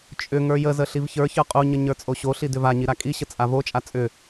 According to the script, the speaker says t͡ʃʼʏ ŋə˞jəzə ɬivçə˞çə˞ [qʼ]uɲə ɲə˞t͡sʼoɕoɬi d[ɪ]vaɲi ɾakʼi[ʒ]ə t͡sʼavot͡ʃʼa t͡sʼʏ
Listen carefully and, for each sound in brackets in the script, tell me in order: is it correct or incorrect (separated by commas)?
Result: correct, incorrect, incorrect